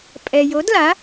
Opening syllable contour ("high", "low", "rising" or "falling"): low